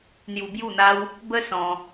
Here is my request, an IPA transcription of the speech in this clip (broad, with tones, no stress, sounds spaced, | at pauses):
n̪ j u˧ b j u˥˧ n̪ a˦ w | b ə˦ s ɔ̃˧